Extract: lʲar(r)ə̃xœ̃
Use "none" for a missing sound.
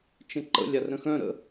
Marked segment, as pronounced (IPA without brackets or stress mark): ɾ